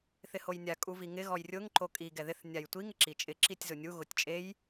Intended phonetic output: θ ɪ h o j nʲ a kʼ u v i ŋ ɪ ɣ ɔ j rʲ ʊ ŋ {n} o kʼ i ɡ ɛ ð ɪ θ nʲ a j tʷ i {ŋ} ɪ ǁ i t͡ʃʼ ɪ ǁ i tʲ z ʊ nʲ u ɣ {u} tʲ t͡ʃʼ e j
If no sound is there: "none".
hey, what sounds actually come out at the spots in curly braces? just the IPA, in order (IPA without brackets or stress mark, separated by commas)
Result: ǃ, ŋ, ʊ